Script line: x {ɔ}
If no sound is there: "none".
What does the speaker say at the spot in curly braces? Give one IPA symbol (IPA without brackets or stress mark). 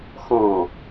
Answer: ɔ̃